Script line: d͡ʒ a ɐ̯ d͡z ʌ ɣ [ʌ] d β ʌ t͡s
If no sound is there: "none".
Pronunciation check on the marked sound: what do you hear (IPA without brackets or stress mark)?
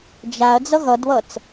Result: ʌ